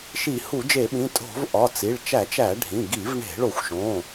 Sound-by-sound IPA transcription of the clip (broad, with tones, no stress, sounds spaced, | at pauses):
ʃ i˧˩˧ h u˧˩˧ d͡ʒ e˧˩˧ ɓ ĩ˩˧˩ tʼ o̤˧˩˧ v ʔ ɒ˩˧˩ t͡s i˩˧˩ ɭ t͡ʃ æ˧˩˧ t͡ʃ æ˧˩˧ ɖʱ ĩ˩˧˩ ɡ i˧˩˧ v ɳ e̤˧˩˧ ɭ o˧˩˧ xʷ ʃ õ˩˧˩